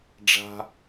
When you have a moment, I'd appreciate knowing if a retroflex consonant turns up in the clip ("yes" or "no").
yes